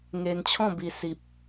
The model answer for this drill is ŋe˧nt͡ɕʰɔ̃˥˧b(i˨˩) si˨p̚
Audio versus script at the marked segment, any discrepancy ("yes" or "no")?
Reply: yes